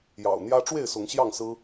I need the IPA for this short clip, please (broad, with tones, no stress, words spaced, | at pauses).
jɑ̰˨˩ʊ̯n̪jä˦ ʈ͡ʂwe˥˨ɪ̯sʊ˨˦ŋ ɕjɑ˥˨ŋsɹ̩˦